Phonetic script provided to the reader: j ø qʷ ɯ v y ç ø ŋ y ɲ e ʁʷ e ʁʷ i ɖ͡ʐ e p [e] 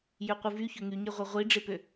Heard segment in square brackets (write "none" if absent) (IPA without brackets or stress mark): ø